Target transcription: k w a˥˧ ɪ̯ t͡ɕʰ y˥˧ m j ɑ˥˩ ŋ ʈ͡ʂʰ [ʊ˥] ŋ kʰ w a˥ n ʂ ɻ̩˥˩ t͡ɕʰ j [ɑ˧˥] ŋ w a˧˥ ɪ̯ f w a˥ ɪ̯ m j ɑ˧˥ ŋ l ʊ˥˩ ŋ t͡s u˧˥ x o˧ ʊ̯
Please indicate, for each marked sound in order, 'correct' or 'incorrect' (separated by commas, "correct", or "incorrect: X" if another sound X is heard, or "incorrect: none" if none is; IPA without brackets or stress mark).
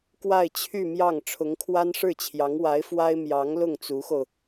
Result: incorrect: ʊ˧˥, correct